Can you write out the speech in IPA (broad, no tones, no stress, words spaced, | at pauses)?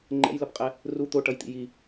ŋ͡ǃɛ̰jlʌpqʼɛ | ru t̪oʈʌjt̪ḭ ji